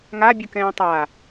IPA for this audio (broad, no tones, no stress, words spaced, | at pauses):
ŋabʲɯkɛ̃ː tˤa